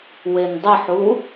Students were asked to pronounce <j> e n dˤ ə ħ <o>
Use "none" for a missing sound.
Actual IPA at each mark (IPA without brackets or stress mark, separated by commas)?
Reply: w, u